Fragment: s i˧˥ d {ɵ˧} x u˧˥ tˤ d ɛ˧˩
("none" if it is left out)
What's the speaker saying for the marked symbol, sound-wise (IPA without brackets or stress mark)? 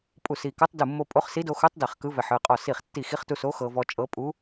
o˧